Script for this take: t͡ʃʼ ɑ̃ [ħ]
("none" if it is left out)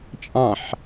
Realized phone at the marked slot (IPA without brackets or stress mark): ħ